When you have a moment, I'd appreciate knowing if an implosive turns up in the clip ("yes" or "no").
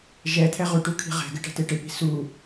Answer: no